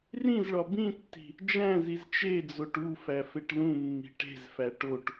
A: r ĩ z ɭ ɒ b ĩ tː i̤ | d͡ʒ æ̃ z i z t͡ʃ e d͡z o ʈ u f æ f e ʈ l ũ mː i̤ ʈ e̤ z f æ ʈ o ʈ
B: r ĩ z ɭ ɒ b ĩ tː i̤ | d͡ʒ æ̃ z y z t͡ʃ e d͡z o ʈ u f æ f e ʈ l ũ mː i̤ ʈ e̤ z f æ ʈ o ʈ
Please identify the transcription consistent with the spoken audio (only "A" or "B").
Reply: A